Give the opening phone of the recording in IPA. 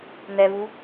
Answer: n̪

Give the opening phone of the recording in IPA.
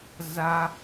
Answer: z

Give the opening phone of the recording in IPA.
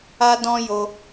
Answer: a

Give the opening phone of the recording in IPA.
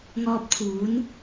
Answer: ŋ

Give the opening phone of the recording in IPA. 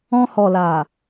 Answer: ɔ̃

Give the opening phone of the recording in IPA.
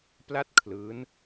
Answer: p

